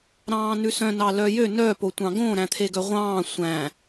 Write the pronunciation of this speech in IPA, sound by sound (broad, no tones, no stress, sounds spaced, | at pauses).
ɾ ɑ̃ː n ʉ s œ̃ n ɑ l œ j ø n œ p o tʷ ɑ̃ ɡ õ ɾ æ̃ t̪ʰ e ɡ œ ʁʷ ɑ̃ː sʷ æ̃